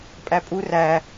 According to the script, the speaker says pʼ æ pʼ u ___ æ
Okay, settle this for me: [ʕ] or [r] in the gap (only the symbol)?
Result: r